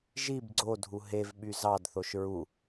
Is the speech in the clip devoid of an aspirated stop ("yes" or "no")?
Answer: yes